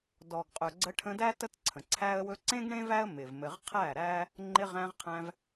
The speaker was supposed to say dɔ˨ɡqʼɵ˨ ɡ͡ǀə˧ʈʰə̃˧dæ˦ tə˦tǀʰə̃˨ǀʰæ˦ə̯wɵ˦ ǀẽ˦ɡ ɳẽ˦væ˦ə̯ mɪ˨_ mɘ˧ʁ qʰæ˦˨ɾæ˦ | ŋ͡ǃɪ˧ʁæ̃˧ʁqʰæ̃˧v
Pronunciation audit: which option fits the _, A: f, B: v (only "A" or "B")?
B